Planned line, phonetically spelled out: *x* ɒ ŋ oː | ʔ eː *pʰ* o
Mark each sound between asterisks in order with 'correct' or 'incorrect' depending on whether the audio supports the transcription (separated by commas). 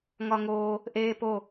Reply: incorrect, incorrect